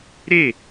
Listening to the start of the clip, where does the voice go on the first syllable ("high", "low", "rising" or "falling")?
falling